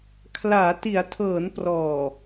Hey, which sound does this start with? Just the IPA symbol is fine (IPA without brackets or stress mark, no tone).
kʰ